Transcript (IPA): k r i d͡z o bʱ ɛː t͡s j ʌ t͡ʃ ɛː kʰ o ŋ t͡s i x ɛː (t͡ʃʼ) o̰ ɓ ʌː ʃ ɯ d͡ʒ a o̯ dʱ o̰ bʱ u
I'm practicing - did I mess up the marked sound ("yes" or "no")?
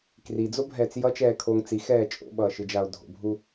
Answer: no